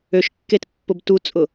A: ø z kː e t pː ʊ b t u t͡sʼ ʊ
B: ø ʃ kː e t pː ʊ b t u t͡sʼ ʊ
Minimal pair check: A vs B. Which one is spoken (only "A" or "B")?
B